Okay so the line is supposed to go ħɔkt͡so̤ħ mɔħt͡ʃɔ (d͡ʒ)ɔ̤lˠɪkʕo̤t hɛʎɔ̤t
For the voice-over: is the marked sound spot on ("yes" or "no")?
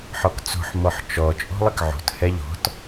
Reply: no